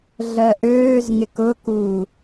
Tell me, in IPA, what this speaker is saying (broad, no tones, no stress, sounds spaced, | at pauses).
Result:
ɮ ɜ ʔ øː z ŋ ɪ k ʊ k u